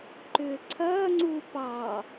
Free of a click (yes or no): no